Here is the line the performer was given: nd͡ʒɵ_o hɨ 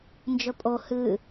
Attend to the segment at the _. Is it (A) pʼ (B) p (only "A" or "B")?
A